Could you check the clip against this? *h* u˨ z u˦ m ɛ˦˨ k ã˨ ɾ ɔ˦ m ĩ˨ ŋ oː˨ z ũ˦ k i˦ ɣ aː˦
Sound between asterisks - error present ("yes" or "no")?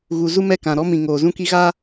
yes